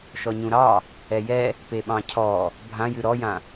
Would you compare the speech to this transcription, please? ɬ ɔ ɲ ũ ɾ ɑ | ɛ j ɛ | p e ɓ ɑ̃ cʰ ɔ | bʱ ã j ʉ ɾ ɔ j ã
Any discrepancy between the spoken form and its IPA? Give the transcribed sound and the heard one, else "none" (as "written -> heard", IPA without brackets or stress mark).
ɬ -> ʃ